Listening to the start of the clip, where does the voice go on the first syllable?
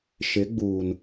rising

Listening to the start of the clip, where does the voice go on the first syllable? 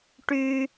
high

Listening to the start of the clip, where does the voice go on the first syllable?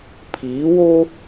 rising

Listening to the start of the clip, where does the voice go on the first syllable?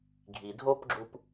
low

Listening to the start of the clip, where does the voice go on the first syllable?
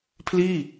falling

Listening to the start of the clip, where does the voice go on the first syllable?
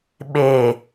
low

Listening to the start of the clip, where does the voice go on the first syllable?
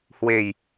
low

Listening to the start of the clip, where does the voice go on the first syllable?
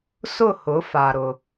falling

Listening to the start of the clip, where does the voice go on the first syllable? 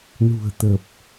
low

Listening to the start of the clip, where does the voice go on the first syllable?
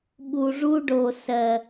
low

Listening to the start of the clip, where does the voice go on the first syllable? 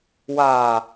low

